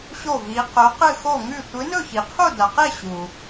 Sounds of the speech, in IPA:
ɕ o˥˧ v i˧˥ q ɵ˧˥ q ɨ˥˧ x o˥˧ ŋ ʉ˥˧ tʷ ɨ˧˥ n ɵ˥˧ ç i˨ qʰ u˥˧ d ɐ˨ q e˥˧ ɕ u˨

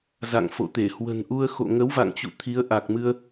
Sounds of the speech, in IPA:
z a̰˧˨ ŋ f o̰˧˨ t̪ e˧˩ h w ə̤˨˩ n ʔ u˧ ə̯ x o̰˧˨ ŋ ə˨˦ w v a̰˧˨ ŋ t͡ɕ ṵ˧˨ t̪ʰ i˨˦ ə̯ ʔ a˨˩ k̚ m ɨ˧ ə̯

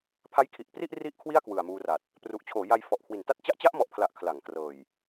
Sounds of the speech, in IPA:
pʰ a˦˥ j kʰ i˨˩ ʔ p r i˥˩ ʔ r i˥˩ ʔ kʰ w i˥˩ a̯ k w ɯ˨˩ a̯ m uː˧ r a˨˩ t̚ | p r u˨˩ ʔ t͡ɕʰ oː˩˦ j a˧ j f ɔ˨˩ ʔ kʰ w i˩˦ n t a˥˩ t̚ t͡ɕ a˦˥ ʔ t͡ɕ a˦˥ ʔ m ɔ˨˩ ʔ pʰ l a˨˩ ʔ kʰ l a˩˦ ŋ k r ɤː˨˩ j

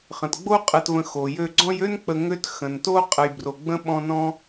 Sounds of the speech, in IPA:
χ ə̃˩ t ɡ͡b o˥ qʼ ə˨ t v ə̃˨ x o˩ j ø˦ ɡ͡ǀ ɔ̃˦ j ø˥ n k͡p ə˨ ŋ ø˦ t x ə̃˩ n t o˥ qʼ ə˨ j b r o˨ ɡ͡b ə̃˥ ɓ ɔ̃˦ n ɔ̃˥

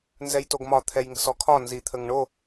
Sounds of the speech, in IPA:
n z ɛ j t o ɡ m ɒ t̪ʰ ɛ j ŋ ə̤ s ɔ kʰ ɒ n z i t̪ʰ ə ŋ ɳ o

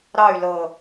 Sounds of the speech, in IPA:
ɾ ɑ y̯ l ɤ

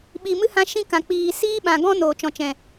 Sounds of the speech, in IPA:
ɓ iː˨ m ɨ˦ h ã˦ ʃ ĩ˦ k ã˨ k͡p iː˨ s iː˦ ɓ ã˨ ɡ ɔ̃˦ n oː˨ t͡ʃ ɔ̃˨ t͡ʃ ɛ̃˨

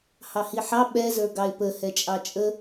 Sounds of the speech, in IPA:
h ɑ h i ħ ɑ ɓ ɛ z ə˞ ɡ ɑ ɪ̯ p ə h ɛ t͡ʃʼ ɑ t͡ʃʼ ə

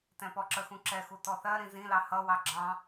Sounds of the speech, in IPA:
t ɛ̃ p ɔ ǁ ə x ũ ǁ ɛ x u t ɔ θ ɜ ɾ ĩ z ĩ l ɑ h ʌ w ɑ ɡ͡ǁ ɑ̃

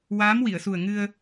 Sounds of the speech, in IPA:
w aː˧˥ m w i˨˩˨ ə̯ s u˨˩ ə̯ ŋ ɨ˧ ə̯

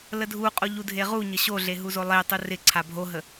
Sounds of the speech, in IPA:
l ə dʱ u qʼ o ʎ u dʱ e ʁ u ɲ ə ɕ o ɮ e ɦ u z o lˠ e tˤ u r ɪ ǀʰ a bʱ o ɦ ə

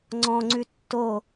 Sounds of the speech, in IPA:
ŋ͡ǀ ɔ̃ ŋ͡ǀ ʉ tː o

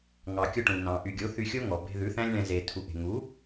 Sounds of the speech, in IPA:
ŋ ɑ˨ kʲ o˦ ʈ ũ˨ n ɑ̃˨ ʔ y˨ ɡʲ o˨˦ θ y˧ xʲ o˦ ŋ ɔ˨ b e̤˧ ð ʉ˨˦ θ æ̃˦ lʲ ɳ ɛ̃˧ z e˨ tʰ u˨ ʔ e̤˨ ŋ u˨˦

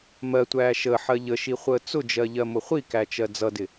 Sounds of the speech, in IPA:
m ɜ tʷ æː ʃ ə ħ ɜ ʎ ə ʃ i χʷ əː t͡s ʊ d͡ʒ ɜ ʎ ɜ m ʊ χʷ i k æ t͡ʃ ɜ d͡z ʌ d ɪ

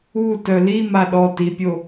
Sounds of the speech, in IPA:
u t œ l i m a ɗ ɔ t i pʲ o

